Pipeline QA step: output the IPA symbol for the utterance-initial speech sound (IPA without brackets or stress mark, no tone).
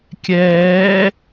kʲ